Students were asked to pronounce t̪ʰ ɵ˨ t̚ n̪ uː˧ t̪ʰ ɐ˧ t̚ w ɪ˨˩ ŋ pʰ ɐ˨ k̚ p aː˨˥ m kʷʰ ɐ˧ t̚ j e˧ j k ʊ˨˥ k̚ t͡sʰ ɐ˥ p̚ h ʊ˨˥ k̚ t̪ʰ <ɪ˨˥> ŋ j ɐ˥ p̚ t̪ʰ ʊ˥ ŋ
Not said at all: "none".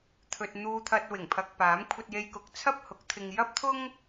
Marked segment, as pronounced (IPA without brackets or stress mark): ɪ˧